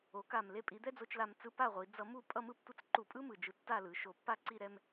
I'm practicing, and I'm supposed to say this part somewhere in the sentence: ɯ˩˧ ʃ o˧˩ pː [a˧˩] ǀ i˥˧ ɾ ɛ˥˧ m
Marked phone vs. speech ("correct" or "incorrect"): incorrect